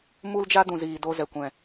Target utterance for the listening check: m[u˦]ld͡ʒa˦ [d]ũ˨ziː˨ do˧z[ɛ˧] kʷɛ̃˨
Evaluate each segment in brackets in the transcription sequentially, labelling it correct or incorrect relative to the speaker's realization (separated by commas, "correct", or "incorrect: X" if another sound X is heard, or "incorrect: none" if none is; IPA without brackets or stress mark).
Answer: correct, correct, incorrect: ɛ˨